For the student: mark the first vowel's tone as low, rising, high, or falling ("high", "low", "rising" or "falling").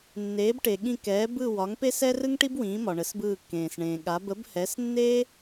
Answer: rising